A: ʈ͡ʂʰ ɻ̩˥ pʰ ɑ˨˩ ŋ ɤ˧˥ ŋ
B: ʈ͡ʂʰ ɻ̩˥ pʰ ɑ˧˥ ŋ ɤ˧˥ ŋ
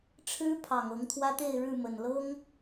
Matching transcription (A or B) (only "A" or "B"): A